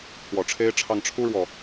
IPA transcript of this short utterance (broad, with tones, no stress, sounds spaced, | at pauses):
t̪ʰ w ɔ˨˩ ʈ͡ʂʰ e˥ ɪ̯ ʈ͡ʂʰ ɑ˥˩ ŋ ʈ͡ʂʰ u˥ ɻ w ɔ˨